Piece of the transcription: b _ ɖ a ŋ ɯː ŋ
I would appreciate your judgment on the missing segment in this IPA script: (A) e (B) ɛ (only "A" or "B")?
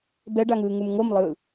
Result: B